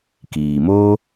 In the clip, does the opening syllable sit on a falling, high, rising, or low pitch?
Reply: low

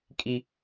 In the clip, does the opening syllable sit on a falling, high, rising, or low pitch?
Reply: high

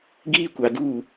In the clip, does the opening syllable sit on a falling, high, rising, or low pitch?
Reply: high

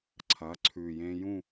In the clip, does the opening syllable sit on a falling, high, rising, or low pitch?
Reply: rising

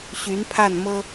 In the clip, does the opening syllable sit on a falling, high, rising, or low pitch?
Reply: rising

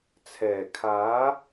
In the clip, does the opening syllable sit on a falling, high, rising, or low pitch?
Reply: low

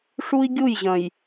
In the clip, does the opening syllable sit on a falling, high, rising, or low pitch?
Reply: high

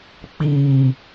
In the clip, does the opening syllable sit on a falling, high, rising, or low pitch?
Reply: low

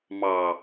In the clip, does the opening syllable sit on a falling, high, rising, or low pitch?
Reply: low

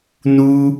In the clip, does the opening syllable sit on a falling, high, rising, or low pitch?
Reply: high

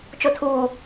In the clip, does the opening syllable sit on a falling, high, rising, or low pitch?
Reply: low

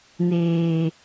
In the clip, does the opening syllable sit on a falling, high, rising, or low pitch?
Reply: low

